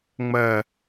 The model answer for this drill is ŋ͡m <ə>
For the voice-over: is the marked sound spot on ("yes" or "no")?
no